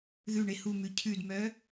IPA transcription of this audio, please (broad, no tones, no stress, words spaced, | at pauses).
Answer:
ðʉ ɳehumʉ cʰʉdmœ